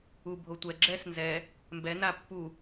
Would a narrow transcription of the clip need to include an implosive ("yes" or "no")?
no